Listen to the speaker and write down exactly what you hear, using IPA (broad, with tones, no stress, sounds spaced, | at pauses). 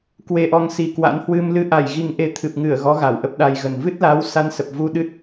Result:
k w e˧ ʔ ɔ˧ ŋ s i˨˩ k w a̰˧˥ n h w ɨ˧ m l ɨ˧ ʔ a˧˩ j ɣ i˨˩ ŋ ʔ e˨˦ t̪ʰ ɨ˨˩ p̚ ŋ ɨ˧˩ ə̯ ɣ ɔ˨˦ ɣ a˧˩ w ʔ ə˦˥ p̚ ɗ a˧ j ɣ ə˨˩ n v ɨ˦˥ t̚ l a˨˦ w s a˧ n s ə˨˩ p̚ v u˧ ɗ ɨ˦˥ t̚